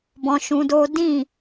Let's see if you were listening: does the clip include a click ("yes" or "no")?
no